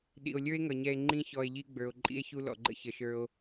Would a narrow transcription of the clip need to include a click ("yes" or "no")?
yes